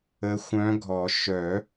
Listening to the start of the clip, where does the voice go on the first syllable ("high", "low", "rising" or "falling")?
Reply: rising